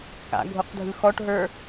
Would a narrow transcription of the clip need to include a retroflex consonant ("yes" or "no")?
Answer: yes